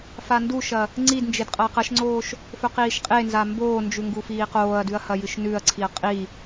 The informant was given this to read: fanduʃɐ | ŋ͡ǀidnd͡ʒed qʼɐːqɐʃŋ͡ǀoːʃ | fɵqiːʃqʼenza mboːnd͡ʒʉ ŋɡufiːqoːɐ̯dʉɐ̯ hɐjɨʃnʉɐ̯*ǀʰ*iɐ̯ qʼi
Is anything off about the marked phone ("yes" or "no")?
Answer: no